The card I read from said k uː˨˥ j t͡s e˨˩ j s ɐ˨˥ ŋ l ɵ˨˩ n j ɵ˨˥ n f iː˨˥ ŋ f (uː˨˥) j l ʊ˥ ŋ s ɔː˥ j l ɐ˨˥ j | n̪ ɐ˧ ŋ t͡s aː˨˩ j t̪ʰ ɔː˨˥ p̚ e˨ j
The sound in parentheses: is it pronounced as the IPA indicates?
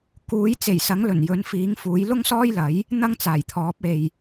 yes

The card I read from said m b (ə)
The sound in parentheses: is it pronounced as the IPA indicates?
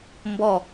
no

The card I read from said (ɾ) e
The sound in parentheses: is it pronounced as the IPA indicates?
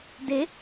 no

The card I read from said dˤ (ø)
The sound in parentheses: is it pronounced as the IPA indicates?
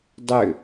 yes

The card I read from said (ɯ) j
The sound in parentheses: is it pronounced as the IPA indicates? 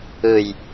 yes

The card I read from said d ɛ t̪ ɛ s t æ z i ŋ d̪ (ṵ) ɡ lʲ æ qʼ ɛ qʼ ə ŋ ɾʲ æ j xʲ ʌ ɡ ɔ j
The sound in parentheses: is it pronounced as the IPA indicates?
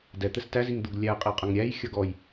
no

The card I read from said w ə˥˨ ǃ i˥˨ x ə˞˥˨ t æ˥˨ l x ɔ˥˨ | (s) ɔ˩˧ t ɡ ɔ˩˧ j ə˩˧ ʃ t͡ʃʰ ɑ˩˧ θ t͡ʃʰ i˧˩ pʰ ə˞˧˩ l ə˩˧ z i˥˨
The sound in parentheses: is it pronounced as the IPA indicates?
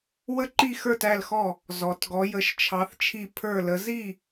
no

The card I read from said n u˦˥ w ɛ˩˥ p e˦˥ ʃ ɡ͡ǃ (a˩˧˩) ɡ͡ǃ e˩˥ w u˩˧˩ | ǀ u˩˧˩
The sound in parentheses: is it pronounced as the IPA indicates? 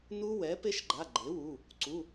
yes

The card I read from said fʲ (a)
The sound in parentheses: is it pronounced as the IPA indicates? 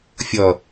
no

